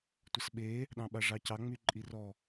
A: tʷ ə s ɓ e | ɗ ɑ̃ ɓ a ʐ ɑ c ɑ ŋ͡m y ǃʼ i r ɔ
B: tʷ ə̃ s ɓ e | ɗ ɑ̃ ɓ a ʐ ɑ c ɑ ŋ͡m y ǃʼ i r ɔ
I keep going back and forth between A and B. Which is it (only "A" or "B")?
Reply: A